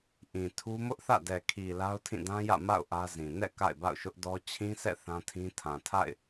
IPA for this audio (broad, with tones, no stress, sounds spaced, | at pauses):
ʔ ĩ˨ tʰ u˦ m ʊ˦ ʔ θ ä̰˦˨ d ɛ˨ kʰ i˨ l a˦ ʊ̯ tʰ ĩ˦˨ d ã˦ j ä̰˦˨ m a̰˦˨ ʊ̯ ʔ ä˦ z ĩ˨ n ɛ̰˦˨ k a̰˦˨ ɪ̯ b a̰˦˨ ʊ̯ ʃ ʊ˦ ʔ d ɔ˦ t͡ɕʰ ĩ˦ sʰ ɛ̰˦˨ θ ã˦ tʰ ĩ˦ tʰ ã˨ tʰ a̰˦˨ ɪ̯